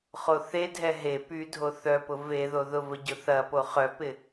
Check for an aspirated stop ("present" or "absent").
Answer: absent